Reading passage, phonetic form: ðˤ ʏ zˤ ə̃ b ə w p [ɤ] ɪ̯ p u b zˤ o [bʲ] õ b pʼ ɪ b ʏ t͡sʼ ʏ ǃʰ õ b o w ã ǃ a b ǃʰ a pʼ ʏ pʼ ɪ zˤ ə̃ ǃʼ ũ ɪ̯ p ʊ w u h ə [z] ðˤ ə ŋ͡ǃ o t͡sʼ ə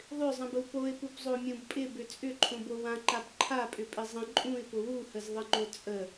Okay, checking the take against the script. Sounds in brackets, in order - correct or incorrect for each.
incorrect: o, incorrect: mʲ, correct

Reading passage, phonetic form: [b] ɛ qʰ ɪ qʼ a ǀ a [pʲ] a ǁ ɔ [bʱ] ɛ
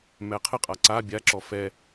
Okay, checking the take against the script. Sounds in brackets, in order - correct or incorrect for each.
incorrect: m, incorrect: bʲ, incorrect: f

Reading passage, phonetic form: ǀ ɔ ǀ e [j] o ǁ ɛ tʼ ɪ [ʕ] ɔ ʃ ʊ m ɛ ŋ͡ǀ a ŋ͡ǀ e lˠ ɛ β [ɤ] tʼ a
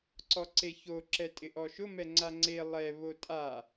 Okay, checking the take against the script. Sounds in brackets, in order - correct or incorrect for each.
incorrect: ç, incorrect: ʔ, incorrect: o

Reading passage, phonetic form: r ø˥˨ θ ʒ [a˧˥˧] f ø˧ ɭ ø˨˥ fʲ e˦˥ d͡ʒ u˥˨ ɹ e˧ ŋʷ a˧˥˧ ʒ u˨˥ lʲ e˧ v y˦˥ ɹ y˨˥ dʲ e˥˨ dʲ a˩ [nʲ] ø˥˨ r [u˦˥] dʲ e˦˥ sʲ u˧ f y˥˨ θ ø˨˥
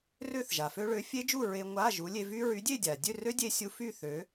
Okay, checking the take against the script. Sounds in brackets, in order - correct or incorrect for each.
incorrect: a˩, incorrect: dʲ, incorrect: ø˦˥

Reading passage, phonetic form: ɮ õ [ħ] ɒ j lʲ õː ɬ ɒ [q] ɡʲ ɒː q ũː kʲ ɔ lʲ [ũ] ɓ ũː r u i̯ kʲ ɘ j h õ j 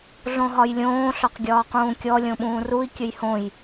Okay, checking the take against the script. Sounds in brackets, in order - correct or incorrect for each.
incorrect: ɦ, correct, incorrect: õ

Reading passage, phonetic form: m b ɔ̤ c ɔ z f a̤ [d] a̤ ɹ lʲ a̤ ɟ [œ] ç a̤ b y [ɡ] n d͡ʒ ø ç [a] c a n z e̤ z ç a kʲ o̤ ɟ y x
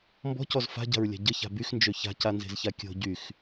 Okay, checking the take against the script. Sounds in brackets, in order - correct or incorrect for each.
incorrect: ɟ, incorrect: ə, incorrect: x, incorrect: a̤

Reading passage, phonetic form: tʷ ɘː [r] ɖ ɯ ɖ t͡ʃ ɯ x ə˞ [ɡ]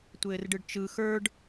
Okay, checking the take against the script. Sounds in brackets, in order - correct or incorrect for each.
correct, incorrect: ɖ

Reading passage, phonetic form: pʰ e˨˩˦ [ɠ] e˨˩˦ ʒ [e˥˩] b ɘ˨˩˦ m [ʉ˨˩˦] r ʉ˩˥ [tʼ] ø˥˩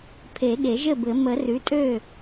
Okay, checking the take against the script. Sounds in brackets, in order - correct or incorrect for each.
correct, incorrect: ɘ˥˩, incorrect: ə˨˩˦, correct

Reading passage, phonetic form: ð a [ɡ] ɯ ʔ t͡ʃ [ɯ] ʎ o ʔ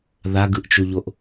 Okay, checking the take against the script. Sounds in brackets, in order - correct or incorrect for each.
correct, incorrect: u

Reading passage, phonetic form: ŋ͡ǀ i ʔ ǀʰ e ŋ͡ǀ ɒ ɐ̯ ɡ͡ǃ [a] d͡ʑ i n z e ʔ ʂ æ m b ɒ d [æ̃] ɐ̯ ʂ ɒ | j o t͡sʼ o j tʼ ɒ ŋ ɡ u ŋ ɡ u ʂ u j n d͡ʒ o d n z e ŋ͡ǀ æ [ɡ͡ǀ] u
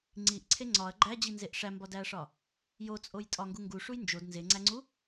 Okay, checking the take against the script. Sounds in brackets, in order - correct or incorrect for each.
incorrect: æ, incorrect: æ, incorrect: ŋ͡ǀ

